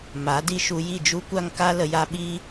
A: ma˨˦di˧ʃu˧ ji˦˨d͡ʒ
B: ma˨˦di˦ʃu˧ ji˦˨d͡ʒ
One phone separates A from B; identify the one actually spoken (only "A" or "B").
B